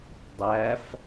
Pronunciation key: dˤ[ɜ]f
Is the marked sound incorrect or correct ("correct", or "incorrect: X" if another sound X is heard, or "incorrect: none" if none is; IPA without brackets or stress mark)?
incorrect: æ